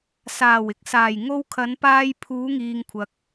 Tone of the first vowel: low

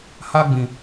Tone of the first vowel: high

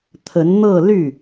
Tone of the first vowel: rising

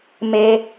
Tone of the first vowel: high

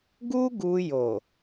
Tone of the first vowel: high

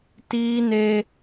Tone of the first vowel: high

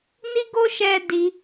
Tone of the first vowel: high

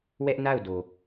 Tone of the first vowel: high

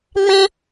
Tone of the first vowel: high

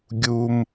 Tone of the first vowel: high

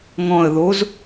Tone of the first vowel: low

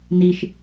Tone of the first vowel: high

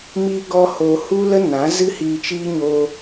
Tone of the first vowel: high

